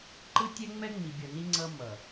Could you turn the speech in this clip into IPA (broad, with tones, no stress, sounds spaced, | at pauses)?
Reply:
ǃ ɯ˦ tʲ ɛ˦ ŋ͡m ɛ˦ ŋ͡m i˨ bʲ ʌ˨ n i˦ ŋ͡ǀ ʌ˦ m ʌ˨